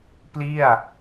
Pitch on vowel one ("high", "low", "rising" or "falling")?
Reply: falling